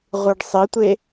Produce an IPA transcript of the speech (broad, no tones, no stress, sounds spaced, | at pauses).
ʁʷ ɯ ɖ sˤ i tʷ e